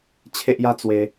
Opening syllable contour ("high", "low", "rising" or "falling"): high